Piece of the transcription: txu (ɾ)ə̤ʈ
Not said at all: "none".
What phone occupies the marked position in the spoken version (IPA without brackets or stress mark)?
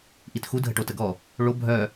dʱ